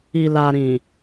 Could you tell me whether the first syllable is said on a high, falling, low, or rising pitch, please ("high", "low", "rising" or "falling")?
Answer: low